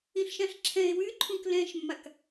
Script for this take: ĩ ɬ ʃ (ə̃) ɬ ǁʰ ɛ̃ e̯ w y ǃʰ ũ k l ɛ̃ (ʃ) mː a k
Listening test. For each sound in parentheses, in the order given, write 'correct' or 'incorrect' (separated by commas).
incorrect, correct